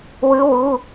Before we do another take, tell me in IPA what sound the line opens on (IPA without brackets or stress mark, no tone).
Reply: w